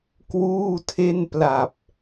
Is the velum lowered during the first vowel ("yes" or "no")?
no